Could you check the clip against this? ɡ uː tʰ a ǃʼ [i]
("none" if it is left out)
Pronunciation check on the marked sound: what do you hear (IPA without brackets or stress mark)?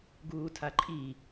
i